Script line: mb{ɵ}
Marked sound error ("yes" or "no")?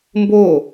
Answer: yes